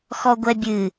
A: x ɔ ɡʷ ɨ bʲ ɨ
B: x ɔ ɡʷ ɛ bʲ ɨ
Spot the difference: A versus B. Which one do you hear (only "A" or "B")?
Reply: B